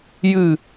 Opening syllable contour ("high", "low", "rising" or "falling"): falling